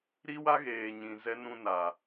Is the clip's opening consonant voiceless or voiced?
voiced